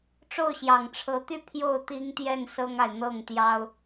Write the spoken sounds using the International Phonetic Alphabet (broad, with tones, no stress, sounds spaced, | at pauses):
ʈ͡ʂ o˥˩ ʊ̯ ɕ j ɑ˨˩ ŋ ʈ͡ʂʰ ɤ˧˥ t̪ y˥˧ pʰ j o˥˩ ʊ̯ t̪ i˥ ŋ t̪ j ɛ˥˩ n s ɤ˥ ŋ a˨ ɪ̯ n̪ ɤ˥˩ ŋ t̪ j ɑ˥ ʊ̯